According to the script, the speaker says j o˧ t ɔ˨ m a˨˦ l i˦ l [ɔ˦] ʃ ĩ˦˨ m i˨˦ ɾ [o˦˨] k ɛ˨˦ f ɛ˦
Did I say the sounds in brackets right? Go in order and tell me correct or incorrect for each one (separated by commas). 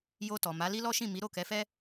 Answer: correct, correct